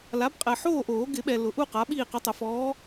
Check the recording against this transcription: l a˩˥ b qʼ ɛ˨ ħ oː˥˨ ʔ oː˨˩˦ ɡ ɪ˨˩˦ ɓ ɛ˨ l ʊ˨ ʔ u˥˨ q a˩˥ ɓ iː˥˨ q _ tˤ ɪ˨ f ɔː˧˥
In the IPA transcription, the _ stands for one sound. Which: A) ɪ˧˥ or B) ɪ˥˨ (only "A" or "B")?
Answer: A